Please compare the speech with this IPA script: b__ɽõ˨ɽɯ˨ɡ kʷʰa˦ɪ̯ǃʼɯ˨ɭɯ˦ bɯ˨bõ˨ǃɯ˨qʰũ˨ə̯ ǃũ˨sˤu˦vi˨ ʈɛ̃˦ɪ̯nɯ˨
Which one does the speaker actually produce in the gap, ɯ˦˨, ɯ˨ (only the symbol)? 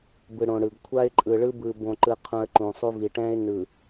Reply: ɯ˨